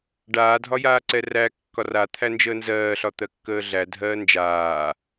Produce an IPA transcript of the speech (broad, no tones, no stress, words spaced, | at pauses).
ɖaːdʱɒjaːǀɛ ræ kːɒrat̪ʰæ nd͡ʒəːnzɜːɬɒ t̪ɜkːəːɮæ dʱɜːnd͡ʒaː